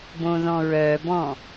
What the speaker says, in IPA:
b õ ð ɔ̃ ɹ œ b ɔ̃

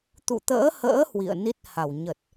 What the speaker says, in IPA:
t̪ ṵ˧˨ t̪ ə̰ː˧˥ h ə̰ː˧˥ h w ḭ˧˨ ə̯ n i˦˥ t̚ h a˧˩ w ɲ ə˨˩ t̚

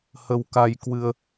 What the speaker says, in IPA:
h ə˧ w k a˧ j k w ɨ˧ ə̯

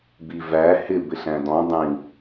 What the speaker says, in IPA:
b i v æ h ɪ b ɪ ɬ æ̃ d ɔ̃ dˤ ĩ

